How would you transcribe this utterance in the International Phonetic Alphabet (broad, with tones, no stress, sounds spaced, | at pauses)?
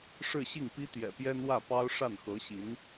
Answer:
ʂ ɻ̩˥˧ ɕ i˥˩ ŋ p i˥ t̪ j ɛ̰˨˩ p j ɛ˥ n w ä˥˩ p ɑ˥ ʊ̯ ʂ a˥˩ n x ɤ˧˥ ɕ i˧˥ n